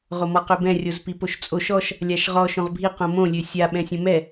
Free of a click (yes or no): yes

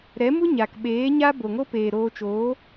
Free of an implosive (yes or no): no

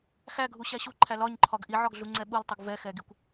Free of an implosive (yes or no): no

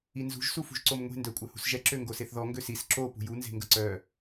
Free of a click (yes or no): no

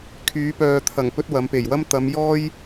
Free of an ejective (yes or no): yes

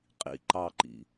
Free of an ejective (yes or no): no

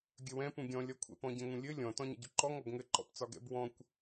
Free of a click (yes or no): no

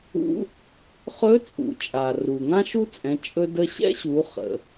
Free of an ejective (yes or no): no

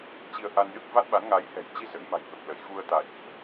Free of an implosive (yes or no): no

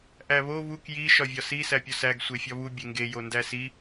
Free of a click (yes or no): yes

